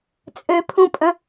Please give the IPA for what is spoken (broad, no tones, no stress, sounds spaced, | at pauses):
t͡sʼ ø pʰ ũ pʼ ə̃